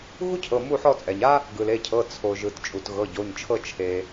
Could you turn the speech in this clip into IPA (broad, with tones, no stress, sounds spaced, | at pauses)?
ɣ u˥ cʰ ɤ˩˧˩ m u˦˨ ħ ɔ˦˨ t͡sʼ ɛ˩ ɲ a˥ | ɡ ɯ˩ l e˩˧˩ cʰ ɤ˩˧˩ t͡sʰ o˩ ʒ ɯ˩ t t͡ʃʼ u˩ t ɣ ɤ˩˧˩ ɟ o˩˧˩ ɲ t͡ʃʰ ɤ˦˨ t͡ʃʰ e˩